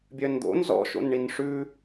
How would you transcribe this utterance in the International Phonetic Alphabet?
bʲ œ n d̪ o̰ n z ɔ̰ ʃ o̰ n ɳ i n ʂ ʉ

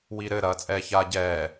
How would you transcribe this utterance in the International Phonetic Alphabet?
w i ɾ ɘ ɾ ɐː t͡sʼ ɛː ç aː ɟ ɛː

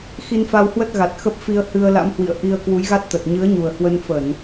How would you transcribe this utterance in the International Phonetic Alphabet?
x i˧ n f a˧ w h w ə˦˥ t̚ ɣ a˨˩ t̚ x ə˦˥ p̚ f i˧ ə̯ h ɨ˧ ə̯ l a̰˧˥ m h w ḭ˧˨ ə̯ ʔ i˧ ə̯ k w u˨˦ j ɣ a˦˥ t̚ t̪ ə˨˩ t̚ ɲ ɨ˨˦ ə̯ ɲ u˨˩ ə̯ h w ə˧ n f ə˧˩˨ n

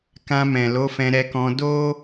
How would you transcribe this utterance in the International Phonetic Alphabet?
k ã˧ m ɛ̃˨ l o˨˦ f ɛ̃˧ ɾ ɛ˧ k ɔ̃˧ d o˦

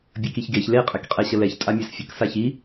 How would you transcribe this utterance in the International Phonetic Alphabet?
bʲ ə k i ç ɡ e ç l e qʼ ɛ k qʼ ɛ ɕ ə l ɛ ç tʼ a mʲ ɛ s fʲ ə k s a ç i

